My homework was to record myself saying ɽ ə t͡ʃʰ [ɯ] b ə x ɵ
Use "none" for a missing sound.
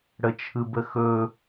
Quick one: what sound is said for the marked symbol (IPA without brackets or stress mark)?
ɯ